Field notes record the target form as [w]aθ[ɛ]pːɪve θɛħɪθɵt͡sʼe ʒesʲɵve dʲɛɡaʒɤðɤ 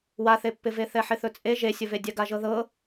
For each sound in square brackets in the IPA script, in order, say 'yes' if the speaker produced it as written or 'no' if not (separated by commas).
yes, no